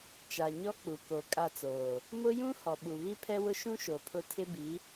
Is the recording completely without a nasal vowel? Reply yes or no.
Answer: no